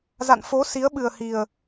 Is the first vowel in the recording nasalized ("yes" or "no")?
no